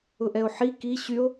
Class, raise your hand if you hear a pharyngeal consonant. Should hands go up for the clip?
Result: yes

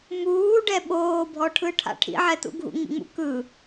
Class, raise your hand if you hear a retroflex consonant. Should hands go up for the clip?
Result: yes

